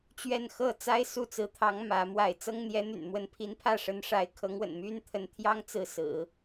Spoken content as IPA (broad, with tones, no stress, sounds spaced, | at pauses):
t͡ɕ ɥ ɛ˥˧ n x ɤ˥˩ t͡s a˥ ɪ̯ s u˥˩ t͡s ɹ̩˧˥ t̪ʰ ɑ˧˥ ŋ m ä˧˥ m w a˥˩ ɪ̯ t͡s ɤ˥ ŋ n̪ j ɛ˧˥ n̪ y̰˨˩ n m w ə˧˥ n pʰ i˧˥ n pʰ ä˥˩ ʂ ə˧˥ n ʂ a˧˥ ɪ̯ kʰ ɤ˧˥ ŋ w ə̰˨˩ n m y˥ n t̪ʰ ə˧˥ n t̪ʰ j ɑ˥ ŋ t͡s ɹ̩˥˩ s ɹ̩˨˩˦